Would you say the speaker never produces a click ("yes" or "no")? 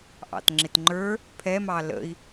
no